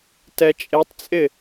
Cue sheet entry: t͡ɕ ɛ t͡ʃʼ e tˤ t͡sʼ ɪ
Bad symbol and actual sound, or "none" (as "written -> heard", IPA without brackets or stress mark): t͡ɕ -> t